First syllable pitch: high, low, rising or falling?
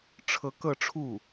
rising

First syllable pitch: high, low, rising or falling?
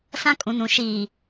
high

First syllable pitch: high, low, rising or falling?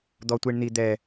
high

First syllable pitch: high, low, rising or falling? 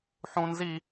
low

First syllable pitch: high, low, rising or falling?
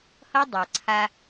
high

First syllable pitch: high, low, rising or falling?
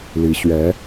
rising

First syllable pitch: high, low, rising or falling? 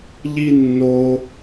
high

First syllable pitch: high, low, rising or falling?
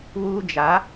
high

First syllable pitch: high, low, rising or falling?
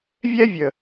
high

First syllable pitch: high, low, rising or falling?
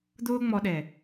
high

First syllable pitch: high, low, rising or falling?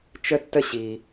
high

